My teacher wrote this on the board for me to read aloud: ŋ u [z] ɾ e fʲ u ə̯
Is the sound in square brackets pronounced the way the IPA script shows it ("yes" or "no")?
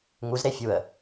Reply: yes